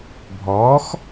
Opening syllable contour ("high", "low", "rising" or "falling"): rising